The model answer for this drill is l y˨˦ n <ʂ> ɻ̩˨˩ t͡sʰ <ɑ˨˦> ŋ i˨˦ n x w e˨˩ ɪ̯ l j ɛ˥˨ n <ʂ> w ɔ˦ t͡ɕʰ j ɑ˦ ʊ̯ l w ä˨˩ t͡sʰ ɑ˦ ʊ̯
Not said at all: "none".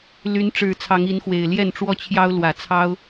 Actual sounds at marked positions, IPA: ʈ͡ʂ, ɑ˨˦, ʈ͡ʂ

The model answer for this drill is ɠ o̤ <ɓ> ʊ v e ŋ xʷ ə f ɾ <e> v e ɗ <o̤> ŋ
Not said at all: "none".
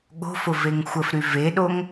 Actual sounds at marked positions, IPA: f, y, o

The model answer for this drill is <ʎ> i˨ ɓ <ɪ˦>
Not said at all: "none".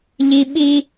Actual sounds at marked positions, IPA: ʎ, i˦

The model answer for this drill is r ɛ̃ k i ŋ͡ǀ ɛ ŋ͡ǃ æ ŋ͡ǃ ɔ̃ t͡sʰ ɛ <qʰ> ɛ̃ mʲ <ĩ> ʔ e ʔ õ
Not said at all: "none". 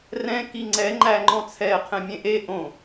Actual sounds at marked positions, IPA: qʰ, ẽ

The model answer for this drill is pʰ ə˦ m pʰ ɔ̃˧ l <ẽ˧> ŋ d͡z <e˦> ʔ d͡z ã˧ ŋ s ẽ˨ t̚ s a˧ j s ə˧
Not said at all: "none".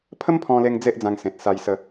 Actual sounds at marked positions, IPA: e˧, e˦

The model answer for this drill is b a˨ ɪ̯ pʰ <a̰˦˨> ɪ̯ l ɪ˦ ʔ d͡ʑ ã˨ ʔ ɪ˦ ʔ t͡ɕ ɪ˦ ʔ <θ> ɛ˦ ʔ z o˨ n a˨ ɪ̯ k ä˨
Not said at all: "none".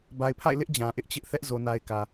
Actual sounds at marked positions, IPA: a̰˦˨, θ

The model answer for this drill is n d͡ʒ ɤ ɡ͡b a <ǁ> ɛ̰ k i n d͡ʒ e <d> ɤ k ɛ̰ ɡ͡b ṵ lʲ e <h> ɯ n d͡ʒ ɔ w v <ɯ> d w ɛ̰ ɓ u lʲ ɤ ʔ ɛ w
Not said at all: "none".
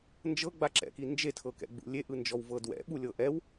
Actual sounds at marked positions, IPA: ǁ, tʰ, ʔ, ɤ

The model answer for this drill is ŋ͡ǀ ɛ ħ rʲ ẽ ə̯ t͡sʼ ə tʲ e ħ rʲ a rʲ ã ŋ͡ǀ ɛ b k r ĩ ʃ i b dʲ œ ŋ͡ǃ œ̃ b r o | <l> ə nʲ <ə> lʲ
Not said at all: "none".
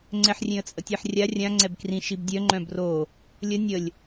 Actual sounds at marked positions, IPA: lʲ, ə

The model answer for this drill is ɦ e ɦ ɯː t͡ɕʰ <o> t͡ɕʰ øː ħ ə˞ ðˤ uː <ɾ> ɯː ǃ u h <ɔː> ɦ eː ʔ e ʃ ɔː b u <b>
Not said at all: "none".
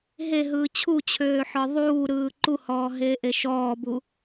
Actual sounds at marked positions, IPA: u, ɾ, ɔː, none

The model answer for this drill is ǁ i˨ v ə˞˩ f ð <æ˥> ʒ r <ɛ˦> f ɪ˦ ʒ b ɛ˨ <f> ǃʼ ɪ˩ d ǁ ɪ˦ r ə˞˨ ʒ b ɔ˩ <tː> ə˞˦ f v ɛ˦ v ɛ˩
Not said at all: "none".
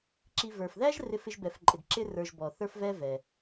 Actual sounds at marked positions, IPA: æ˥, ɪ˦, f, θ

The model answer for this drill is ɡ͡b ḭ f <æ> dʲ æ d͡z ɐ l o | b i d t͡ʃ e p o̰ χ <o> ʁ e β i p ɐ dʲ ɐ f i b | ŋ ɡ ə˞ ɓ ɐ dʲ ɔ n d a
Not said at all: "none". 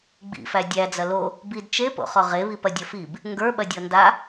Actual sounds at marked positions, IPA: æ, ɔ

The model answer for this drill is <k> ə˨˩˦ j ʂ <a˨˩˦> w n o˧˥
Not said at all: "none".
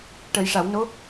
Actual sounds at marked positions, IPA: ʈ, a˨˩˦

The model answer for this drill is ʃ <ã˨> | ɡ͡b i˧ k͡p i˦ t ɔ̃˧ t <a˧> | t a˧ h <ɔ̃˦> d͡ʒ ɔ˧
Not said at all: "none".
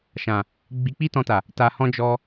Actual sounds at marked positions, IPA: ã˨, a˨, ɔ̃˦

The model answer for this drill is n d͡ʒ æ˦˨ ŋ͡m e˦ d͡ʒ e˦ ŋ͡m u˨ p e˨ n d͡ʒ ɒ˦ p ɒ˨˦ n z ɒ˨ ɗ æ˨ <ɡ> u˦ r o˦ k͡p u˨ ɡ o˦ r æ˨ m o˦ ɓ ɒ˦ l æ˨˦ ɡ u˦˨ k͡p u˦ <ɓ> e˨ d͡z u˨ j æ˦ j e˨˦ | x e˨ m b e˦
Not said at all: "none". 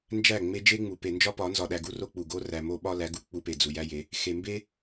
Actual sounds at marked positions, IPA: ɡ, p

